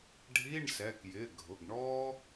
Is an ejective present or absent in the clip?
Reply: absent